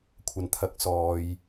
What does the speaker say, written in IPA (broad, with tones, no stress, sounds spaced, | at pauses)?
kʷʰ ɐ˨ n t̪ʰ ɐ˨˥ k̚ s ɔː˨ j